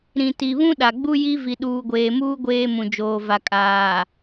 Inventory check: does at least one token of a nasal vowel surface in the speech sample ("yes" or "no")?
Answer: yes